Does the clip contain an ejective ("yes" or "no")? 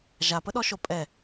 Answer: yes